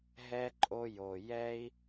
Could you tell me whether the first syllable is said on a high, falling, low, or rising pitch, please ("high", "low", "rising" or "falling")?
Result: high